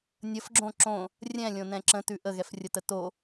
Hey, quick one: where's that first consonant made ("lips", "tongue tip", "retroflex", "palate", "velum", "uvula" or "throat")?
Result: tongue tip